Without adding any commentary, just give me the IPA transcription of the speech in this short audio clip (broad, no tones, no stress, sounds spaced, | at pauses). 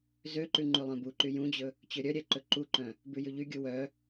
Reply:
z ø ǃ ʉ ŋ͡ǃ ʉ lˠ œ̃ b u ǃ y j ũ d͡ʑ ɵ | t͡ɕ ø ɾʲ œ ɾʲ ɛ ǃ ɵ ǃ u ǃ œ̃ | b ʉ j ʉ ʎ y ɡʲ u w œ